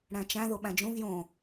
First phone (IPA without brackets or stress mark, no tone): ɽ